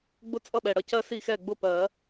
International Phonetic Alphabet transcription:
ɡ͡bʊ˥ t͡sʼʌ˥˨ɓɛ˨˩ ɽʌ˥˨cɜ˥ si˥˨xɛ˥˨ɡ͡bʊ˥˨ pɜ˨˩˦

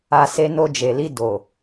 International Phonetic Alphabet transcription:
a˧se˧ no˧d͡ʒe˨li˧ do˨

